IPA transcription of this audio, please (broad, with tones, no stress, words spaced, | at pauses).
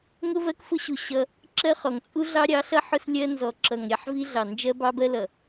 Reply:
ŋʊ˦vɜ˦kfʊ˦ɕu˨ ɕʌ˦ | ǁɜ˦χɔ˨ŋ t͡sʼu˦ɮɑ˦ɾʲɑ˨˦ɬʌ˦ ħʊ˦slʲɜ˦ nzɔ˨ǁʌ˨ŋ ɾʲɑ˦ħvi˦ɮɑ˨ nd͡ʒɜ˦bɑ˦bɜ˦ lʌ˨